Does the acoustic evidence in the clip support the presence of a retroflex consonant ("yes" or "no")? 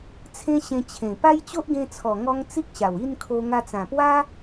no